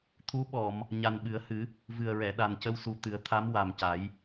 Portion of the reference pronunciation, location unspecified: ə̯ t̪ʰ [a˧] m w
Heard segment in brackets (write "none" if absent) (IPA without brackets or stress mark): a˧˥